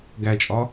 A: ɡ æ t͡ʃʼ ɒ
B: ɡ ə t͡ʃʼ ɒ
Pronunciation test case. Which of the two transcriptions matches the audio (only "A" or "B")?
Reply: A